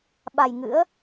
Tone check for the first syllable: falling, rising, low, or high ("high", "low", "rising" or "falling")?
low